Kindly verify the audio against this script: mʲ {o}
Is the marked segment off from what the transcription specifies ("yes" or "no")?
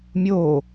no